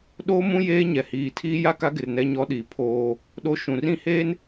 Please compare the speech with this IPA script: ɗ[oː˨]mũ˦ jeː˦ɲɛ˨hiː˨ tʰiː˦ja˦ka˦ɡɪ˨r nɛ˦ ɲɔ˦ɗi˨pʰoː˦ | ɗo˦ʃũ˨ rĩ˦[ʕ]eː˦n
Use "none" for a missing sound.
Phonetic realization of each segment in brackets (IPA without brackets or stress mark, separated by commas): oː˦, h